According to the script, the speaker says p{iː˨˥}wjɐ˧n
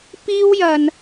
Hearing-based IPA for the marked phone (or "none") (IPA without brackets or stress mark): iː˥